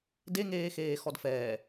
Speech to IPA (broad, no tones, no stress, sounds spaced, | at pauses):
d e ŋ eː x eː x ɔ d f ɛː